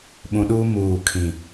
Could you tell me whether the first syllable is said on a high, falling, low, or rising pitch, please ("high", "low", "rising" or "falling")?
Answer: low